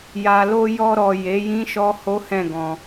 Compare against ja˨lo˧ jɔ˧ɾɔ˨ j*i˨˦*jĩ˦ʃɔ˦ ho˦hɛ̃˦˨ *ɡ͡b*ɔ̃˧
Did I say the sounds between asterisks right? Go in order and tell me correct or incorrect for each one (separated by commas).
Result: incorrect, incorrect